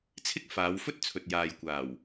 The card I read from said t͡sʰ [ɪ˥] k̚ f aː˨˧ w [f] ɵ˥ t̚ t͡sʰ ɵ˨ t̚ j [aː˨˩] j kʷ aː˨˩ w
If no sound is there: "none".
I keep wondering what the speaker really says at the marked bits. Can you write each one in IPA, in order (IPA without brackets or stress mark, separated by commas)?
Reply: ɪ˥, f, aː˨